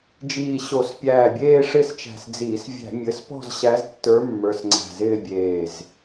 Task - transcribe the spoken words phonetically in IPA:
d͡ʒiː˧˩ɕo˧˩˧spʲæː˧˩bʲeː˥˧ ʂɪ˥˧st͡ʃæ̤˧˩sd͡ziː˧˩˧s vʲæ̤˧˩˧mʲɘ˩˧˩spɔ̤˥˧z ɕæ˧˥ztːə˞˧˥mːə˞˩˧˩s ŋ͡ǀæ̤˧˩zɪː˥˧bʲeː˧˩z

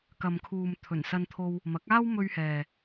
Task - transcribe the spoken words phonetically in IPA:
kɐ˨mkʰuː˨m t̪ʰɵ˨˩nsɐ˧nt̪ʰo˧w | mɐ˨˥k̚aː˥w mɵ˧ɥhɛː˨

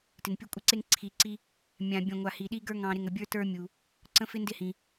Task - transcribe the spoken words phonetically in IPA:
tɪ˨npʲʊ˦kʷʼɪ˦ǀe˦ŋ ǀʰi˨ǀi˦ | mʲã˨ bʲə̃˨ŋʷa˨ hi˨ɗi˦ɡə˞˦ ŋɑ̃˨ɾɪ˨ŋ ə˨bʲə˞˦tə˞˦ mʲu˨ | ǀə̃˦fɪ˦ ndɪ˦hĩ˨

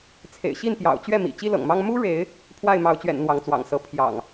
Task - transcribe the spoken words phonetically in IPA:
t͡sʰḛ˨˩ɪ̯ɕi˥˨n pjɑ̰˨˩ʊ̯t͡ɕɥɛ˥˨mḭ˨˩ t͡ɕi˦lɤ̰˨˩ŋmɑ˦ŋ mu˦ɻe˨˦ɪ̯ | pʰwa˥˨ɪ̯mɑ˨˦ʊ̯t͡ɕɥɛ̰˨˩n n̪wɑ˨˦ŋt͡swɑ̰˨˩ŋsɤ˨˦ pʰjɑ̰˨˩ŋ

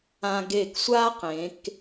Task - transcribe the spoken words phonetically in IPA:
ã˧ɡe˧˩ksʷaː˥ qẽ˩˧k

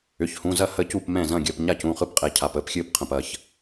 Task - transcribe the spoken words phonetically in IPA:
ʏ˩˧˩çhũ˩˧˩zɐ˥˩ hə˥˩ cu˥˩pmɛ̃˥˩ zɐ̃˥˩ɡʲəː˩˧˩p ɲa˥˩cũ˩˧˩χɯ˥˩pqʼɛ˩˧˩ cʰa˩˧˩pəː˩˧˩pxʲɨː˥˩pqʰə̃˩˧˩p ɐ˥˩ç

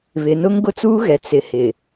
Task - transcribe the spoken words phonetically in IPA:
βɪ˨˦n ʊ˦ŋ ɡʊ˦t͡suː˦ɣɛ˨ t͡sɪ˨ hɪ˨

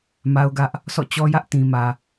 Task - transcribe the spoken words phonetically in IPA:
ma˦ʊ̯ɡä˦ʔ | sɔ̰˦˨t͡ɕɔ˦jä˦ʔ tĩ˨mä˨

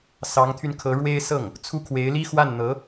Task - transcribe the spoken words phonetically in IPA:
sɑ˧˥ŋt̪ʰy˧nkʰɤ˧˥ ɻwe˥ɪ̯sɤ˥˩ŋ | t͡sʰu˥ kʰwe˧˥ɪ̯li˥ xwa˥˩nn̪ɤ˧˥

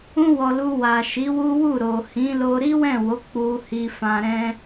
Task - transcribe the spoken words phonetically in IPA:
ũ˧wɔ˨ lu˧wa˨ ʃi˨˦wu˦wu˦˨ ɾo˨hĩ˨˦lo˧ ɾi˦wɛ̃˦˨wo˨˦ k͡pu˧ hi˧fã˧ɾɛ̃˦

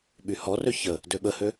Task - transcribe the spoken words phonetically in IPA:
ɓyhɔrø çə | døɓəhø

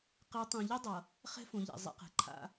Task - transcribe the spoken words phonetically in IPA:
qe˨˦tˤõ˨ʎi˦ dˤʌ˨ | χɛ̤˦fõ˨ʎɛ̰˨ zˤḛ˨qɛ̤˨ǃʰa̰˦

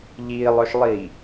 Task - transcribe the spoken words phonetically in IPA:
ʎiːlˠœʃlˠiː

